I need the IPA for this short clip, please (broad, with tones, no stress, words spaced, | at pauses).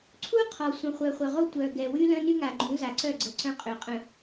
ǀʰu˦ qʰɔ˨ sʷə̃˨χʷœ˨χʷœ˨ʁo˦ tʷœ˨ ɡɛ˨wy˦lœ̃˦ ny˦ŋa˨ɡ͡ǃũ˨˦za˨ ǀœ˦˨ɡ͡ǀə˨ ǀœ̃˦qʼø˨qʼə̃˨